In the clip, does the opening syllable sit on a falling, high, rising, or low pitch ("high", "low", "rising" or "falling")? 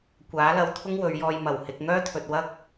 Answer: rising